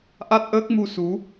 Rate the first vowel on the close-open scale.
open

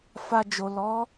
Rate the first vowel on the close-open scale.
open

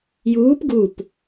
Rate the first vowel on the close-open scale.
close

